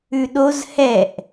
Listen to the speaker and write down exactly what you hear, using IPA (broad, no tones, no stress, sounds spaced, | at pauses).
ʉ ɗ o z h ɛ ʔ